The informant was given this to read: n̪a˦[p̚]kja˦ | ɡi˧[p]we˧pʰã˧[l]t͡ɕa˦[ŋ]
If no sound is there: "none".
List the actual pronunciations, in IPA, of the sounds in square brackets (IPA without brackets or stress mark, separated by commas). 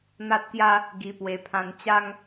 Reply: t̚, p, n, ŋ